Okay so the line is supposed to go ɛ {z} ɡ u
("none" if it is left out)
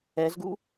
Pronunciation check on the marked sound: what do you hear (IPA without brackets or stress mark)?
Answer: z